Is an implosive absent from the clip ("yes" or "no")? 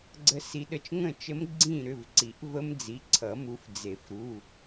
no